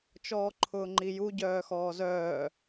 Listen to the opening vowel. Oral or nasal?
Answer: oral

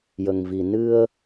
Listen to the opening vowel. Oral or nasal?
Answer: oral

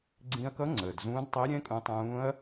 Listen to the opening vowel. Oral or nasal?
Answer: nasal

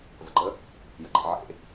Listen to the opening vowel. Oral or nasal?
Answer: oral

